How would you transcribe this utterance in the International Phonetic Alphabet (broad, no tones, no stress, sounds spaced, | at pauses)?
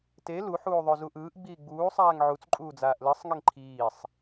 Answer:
t e l u ħ uː ðˤ o z u ʔ ɯː ʔ ɡ͡b iː ɡ͡b uː sˤ aː ŋ ʕ u t͡s ǃʼ uː d͡z aː ʔ l ɯ sˤ ŋ e ŋ ǃʰ iː sˤ